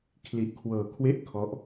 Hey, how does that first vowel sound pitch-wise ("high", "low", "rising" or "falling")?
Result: low